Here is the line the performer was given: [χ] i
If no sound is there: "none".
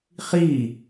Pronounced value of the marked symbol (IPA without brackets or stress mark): χ